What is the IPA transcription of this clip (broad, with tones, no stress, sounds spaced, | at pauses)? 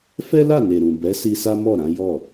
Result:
f ɛ˦ l a˦˨ n e˨ ɾ ũ˨ b ɛ˨˦ s i˧ s a˦ m ɔ˦˨ ɾ ã˨˦ j ɔ˦˨